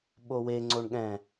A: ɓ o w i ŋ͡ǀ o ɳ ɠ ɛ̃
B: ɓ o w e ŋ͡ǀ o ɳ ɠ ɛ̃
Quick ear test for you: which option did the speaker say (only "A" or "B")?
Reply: B